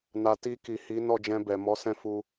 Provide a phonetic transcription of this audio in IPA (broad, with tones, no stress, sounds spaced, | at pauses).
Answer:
n a˨ t i˧ k i˨ h i˨˦ n ɔ˦˨ d͡ʒ ɛ̃˧ b ɛ˨ m ɔ˨˦ s ɛ̃˦˨ f u˧